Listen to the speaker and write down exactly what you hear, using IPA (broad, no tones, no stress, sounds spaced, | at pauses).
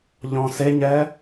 ʎ ɔ̃ s e ɲ ɛ